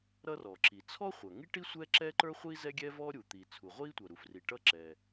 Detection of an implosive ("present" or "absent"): absent